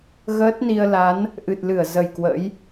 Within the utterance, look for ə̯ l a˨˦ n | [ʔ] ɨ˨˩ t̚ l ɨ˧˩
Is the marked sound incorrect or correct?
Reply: correct